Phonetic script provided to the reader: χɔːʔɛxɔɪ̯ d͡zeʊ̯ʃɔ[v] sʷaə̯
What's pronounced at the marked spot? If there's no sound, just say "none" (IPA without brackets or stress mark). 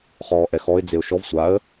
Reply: v